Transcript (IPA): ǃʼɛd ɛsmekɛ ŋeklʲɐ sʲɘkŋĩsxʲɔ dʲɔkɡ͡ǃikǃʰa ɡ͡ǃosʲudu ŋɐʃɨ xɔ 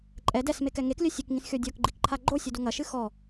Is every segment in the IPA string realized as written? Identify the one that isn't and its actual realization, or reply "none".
none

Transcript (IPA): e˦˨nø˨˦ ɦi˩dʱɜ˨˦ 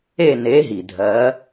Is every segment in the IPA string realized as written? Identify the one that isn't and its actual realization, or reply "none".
ø˨˦ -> e˨˦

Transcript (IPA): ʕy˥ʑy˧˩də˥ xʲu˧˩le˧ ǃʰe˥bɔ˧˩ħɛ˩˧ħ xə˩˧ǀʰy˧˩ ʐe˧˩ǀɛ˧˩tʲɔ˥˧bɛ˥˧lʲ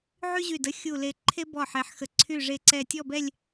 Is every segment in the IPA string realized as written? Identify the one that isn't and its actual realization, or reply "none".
none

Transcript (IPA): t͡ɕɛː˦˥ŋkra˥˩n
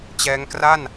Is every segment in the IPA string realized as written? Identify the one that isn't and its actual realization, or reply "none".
none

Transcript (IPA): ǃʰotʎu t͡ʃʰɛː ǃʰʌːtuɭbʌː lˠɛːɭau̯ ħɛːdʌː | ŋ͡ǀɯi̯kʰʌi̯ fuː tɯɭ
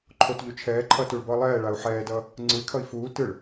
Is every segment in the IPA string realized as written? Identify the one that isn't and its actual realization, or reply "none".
none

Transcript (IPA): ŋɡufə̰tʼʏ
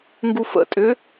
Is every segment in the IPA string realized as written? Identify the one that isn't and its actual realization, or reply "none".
none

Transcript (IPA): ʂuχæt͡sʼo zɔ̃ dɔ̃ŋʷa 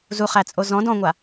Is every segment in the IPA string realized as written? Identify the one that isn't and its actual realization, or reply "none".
ʂ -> z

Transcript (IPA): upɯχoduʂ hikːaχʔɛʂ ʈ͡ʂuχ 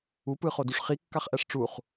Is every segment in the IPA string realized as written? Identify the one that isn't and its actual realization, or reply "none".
h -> χ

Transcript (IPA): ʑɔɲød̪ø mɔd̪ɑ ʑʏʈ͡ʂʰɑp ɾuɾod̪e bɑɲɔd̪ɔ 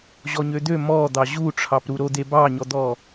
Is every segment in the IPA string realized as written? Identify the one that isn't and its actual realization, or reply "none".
ʏ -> u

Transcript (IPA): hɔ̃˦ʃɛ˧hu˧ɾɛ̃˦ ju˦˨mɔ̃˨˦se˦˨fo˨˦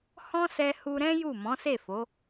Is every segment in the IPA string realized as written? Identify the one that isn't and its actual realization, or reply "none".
ʃ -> s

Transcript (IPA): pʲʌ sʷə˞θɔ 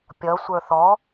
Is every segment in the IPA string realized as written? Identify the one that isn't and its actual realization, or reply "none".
none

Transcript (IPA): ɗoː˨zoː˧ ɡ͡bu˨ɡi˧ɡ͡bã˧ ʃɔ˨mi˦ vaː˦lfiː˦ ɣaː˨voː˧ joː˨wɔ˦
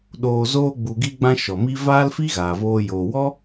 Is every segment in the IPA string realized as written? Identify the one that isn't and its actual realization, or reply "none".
iː˦ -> i˦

